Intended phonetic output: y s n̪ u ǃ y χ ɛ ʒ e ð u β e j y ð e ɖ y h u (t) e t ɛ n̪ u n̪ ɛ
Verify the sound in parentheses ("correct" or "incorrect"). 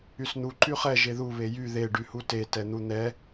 correct